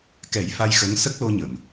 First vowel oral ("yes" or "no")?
yes